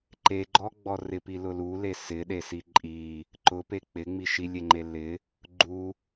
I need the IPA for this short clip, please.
ǃ e ɡ͡ǃ ɔ ɡ͡b ɔ r ɪ p i l ʊ l u l e s ɪ ɗ e s i ǃʼ i | ǃ ʊ p e k͡p ɪ ŋ͡m i ʃ i lʲ e ŋ͡ǃ e l ɪ | ɡ͡ǃ u

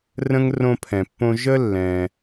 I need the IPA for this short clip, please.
r ə̃˥ ŋ r õ˦ pʰ ɛ̃˨ pː õ˦ ʒ ə˥ lː ɛ̃˨

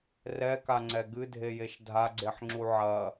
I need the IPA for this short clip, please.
r ɛ k a ŋ͡ǀ ɛ ɡ ɨ dʱ e j e ʃ dʱ a ɡ͡ǀ e ħ ŋ͡ǁ u ʕ ɐ

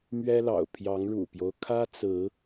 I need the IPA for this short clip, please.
m ɥ ɛ˦ l ɑ̰˨˩ ʊ̯ pʰ j ɑ˨˦ ŋ ɻ ṵ˨˩ p j o˦ ʊ̯ kʰ ä˦ t͡s ɹ̩˨˦

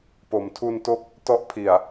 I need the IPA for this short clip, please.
p o˩˦ m tʰ u˧ n t o˥˩ k̚ | t ɔ˦˥ ʔ pʰ i˨˩ a̯

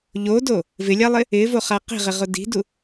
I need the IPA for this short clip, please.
ʎ o d o | v ɪ lʲ a lˠ ɪ | ɪ v o χ a q i̤ ʁ ɪ ʁ ʊ d i̤ d u

